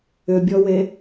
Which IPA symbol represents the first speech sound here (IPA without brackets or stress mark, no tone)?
ʏ